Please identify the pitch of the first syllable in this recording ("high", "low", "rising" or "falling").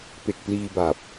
low